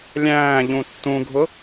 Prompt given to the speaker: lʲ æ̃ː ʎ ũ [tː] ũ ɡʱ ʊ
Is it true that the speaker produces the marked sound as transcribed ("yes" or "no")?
yes